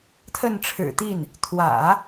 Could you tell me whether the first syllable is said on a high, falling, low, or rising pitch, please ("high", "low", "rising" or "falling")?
falling